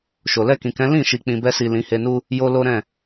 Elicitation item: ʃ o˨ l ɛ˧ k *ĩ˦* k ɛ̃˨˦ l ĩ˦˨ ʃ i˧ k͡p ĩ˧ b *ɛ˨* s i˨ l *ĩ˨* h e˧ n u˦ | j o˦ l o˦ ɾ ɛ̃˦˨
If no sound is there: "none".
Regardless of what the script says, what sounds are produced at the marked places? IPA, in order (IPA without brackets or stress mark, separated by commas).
ĩ˨, ɛ˧, ĩ˨˦